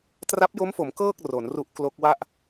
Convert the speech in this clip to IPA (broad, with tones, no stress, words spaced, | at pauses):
tra˦˥p̚jo˦˥mfo˩˦m kɤː˥˩k̚ ro˩˦nru˦˥ʔ klo˦˥k̚ wa˥˩ʔ